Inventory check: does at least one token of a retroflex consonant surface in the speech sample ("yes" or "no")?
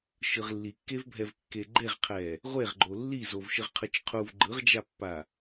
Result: no